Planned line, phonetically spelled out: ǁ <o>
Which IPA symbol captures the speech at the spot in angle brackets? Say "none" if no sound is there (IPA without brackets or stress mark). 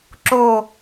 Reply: o